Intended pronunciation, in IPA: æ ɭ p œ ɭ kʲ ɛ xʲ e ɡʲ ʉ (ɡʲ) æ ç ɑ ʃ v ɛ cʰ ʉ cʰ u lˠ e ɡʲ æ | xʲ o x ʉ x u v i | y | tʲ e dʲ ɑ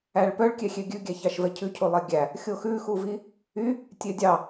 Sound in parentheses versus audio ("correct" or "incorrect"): correct